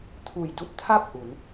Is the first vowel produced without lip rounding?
no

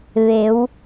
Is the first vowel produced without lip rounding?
yes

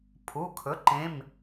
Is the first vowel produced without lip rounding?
no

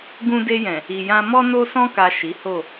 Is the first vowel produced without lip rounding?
no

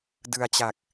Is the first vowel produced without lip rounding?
yes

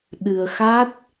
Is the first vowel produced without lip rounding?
yes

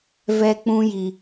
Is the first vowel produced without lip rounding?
yes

